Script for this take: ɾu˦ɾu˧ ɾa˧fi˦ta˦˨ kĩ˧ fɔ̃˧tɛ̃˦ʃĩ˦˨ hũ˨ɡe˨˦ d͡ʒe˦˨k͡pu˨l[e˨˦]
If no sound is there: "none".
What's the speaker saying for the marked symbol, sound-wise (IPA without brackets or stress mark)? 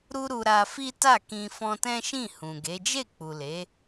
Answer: e˨˦